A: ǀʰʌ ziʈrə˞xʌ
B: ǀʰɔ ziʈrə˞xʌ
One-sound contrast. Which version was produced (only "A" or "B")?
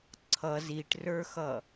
A